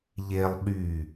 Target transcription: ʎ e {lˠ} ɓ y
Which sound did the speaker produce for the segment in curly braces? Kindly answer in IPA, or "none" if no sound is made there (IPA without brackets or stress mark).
lˠ